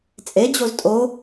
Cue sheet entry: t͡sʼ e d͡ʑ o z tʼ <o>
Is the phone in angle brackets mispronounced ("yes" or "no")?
no